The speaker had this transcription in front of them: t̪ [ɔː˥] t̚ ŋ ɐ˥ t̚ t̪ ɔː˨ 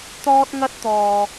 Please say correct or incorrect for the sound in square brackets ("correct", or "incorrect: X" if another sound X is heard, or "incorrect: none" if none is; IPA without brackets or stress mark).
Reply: correct